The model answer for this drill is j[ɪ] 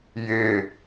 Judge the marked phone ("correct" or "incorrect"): correct